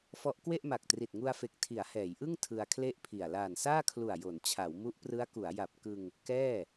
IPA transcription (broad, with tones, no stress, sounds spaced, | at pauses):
f ɔ˦˥ ʔ k w e˥˩ ʔ m a˨˩ k̚ t r i˨˩ t̚ ŋ u˧ a̯ f e˨˩ k̚ tʰ i˩˦ a̯ h ɛː˩˦ j ʔ ɯ˥˩ ŋ tʰ ɯ˧ a̯ kʰ l e˥˩ ʔ pʰ i˨˩ a̯ l aː˨˩ n s aː˥˩ kʰ l u˨˩ a̯ j o˩˦ n t͡ɕʰ a˩˦ w m u˦˥ ʔ p r ɯ˦˥ a̯ k u˩˦ a̯ j a˨˩ p̚ k ɯ˧ ŋ | k ɛː˥˩